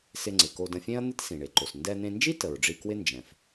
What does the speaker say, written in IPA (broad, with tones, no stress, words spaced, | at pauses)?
sɪ˧ŋ͡ǀɪ˩ ko˧də̃˧fʲẽ˥ɐ̯n̪ɪ˥t sĩ˩ɳe˩ǃo˩s ndɛ˧n̪ẽ˧nd͡ʒi˥ tə˩ɹɖ͡ʐi˧kwɪ˥ nd͡ʒɛ̃˩f